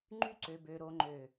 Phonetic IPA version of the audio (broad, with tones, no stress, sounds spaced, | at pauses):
ŋ͡ǃ y˦ ǀ ø˨ b ø˨ ɾ o˨ ŋ͡ǃ ø˨